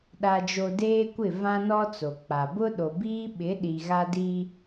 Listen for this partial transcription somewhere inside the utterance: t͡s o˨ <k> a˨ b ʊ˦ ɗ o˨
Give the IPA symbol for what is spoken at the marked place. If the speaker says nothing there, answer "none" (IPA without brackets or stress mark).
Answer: k͡p